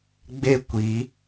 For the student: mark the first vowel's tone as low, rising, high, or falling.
falling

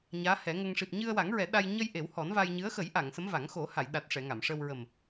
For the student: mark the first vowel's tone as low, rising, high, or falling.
rising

